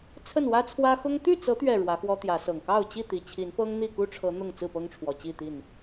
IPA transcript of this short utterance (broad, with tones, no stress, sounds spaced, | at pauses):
t͡sʰ ə˥˨ n w ä˦ t͡sʰ w ä˦ x ʊ˦ ŋ t̪ y˥˨ t͡s ɤ˨˦ t̪ ɥ ɛ˨˩ ɻ w ä˨˦ x w ɔ˦ t̪ j ä˨˦ s ɤ˨˩ ŋ k ɑ˥˨ ʊ̯ t͡ɕ i˥˨ t̪ i˨˩ t͡ɕʰ i˨˦ n p ɤ˦ ŋ n̪ i˥˨ k u˦ ʈ͡ʂʰ ɤ˨˦ n̪ ʊ˥˨ ŋ t͡s ɹ̩˥˨ p ɤ˦ ŋ ʈ͡ʂʰ w ɔ˨˩ t͡ɕ i˥˨ t̪ i˥˨ n